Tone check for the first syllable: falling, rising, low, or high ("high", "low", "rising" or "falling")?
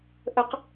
rising